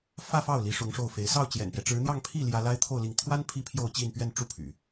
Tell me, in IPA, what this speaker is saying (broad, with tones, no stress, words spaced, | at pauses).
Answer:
fä˥˧fɑ˥˩ʊ̯ li˧˥ʂʊ˧˥ŋʂo˥˩ʊ̯fe˧˥ɪ̯ sɑ˥˩ʊ̯t͡ɕjɛ̰˨˩npjɛ˦ ʈ͡ʂɻ̩˧˥n̪jɑ˥˧ŋ pʰi˥˩ ljä˥ la˥ɪ̯t̪ʰo˥˧ʊ̯li˥˩ŋ t̪ʰwa˥n pʰi˥pʰjo˥˧ʊ̯ t͡ɕi˥˧npɥɛ˥˧n ʈ͡ʂu˥˩ pʰy̰˨˩˦